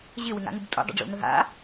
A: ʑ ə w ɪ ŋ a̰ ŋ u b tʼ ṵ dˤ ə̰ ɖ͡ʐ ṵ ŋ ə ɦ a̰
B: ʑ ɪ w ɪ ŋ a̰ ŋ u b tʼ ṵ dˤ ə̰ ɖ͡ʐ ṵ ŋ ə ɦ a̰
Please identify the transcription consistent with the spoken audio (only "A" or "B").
B